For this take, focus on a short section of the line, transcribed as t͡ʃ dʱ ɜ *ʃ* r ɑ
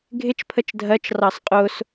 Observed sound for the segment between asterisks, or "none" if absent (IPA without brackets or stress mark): t͡ʃ